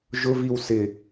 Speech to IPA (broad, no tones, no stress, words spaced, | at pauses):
ʒʊviw sɪ